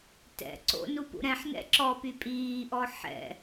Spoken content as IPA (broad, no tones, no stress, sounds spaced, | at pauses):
t ɛ̰ ǀ o̰ n u p ṵ ɾ ɛ̃ ħ n ɛ̰ ǁ ɔ p y pʼ iː ʔ ɔ ħ ɛ̰